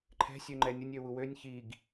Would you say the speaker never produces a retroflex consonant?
yes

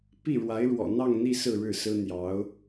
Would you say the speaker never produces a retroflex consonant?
no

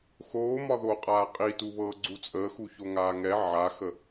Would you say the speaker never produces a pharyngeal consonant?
no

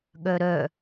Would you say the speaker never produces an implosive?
no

